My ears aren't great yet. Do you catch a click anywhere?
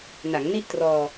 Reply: no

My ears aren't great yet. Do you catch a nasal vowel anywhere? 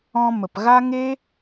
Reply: yes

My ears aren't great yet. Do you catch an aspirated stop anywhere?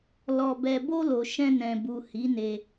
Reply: no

